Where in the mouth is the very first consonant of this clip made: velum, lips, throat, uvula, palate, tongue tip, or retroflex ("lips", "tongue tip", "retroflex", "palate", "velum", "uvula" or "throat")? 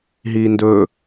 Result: throat